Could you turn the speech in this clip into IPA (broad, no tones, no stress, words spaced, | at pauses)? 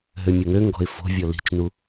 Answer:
ɦømʲoŋøŋɡɔ̤ɪ̯ fo̤vʲɔ li̤t͡ʃnu